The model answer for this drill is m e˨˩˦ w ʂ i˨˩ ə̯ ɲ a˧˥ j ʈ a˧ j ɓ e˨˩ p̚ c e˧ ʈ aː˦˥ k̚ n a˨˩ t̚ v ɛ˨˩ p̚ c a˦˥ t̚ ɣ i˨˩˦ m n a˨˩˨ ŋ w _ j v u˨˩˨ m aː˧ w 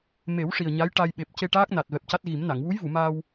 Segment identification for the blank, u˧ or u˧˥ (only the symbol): u˧˥